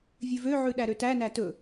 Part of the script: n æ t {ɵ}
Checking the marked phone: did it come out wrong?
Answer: no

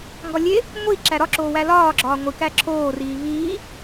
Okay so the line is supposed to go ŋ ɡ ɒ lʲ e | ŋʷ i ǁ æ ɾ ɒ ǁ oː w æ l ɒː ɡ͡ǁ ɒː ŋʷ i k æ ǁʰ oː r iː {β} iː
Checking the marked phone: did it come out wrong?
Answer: no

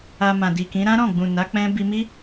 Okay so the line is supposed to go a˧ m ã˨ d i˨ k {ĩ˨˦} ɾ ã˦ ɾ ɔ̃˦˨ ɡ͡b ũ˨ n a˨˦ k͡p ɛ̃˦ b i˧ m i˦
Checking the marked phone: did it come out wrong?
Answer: no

